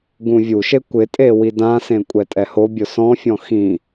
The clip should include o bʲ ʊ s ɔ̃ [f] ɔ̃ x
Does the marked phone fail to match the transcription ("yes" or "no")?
yes